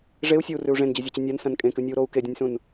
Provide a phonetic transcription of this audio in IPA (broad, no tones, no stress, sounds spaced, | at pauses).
ʐ e u̯ sʲ o u̯ r ʉ u̯ ʐ ẽ n d͡ʑ ɵ zʲ o t͡ɕ ɨ nʲ a n s ɐ̃ n kʼ ẽ k ɨ nʲ ɵ u̯ ɾ o u̯ k e dʲ ɐ̃ nʲ s ũ n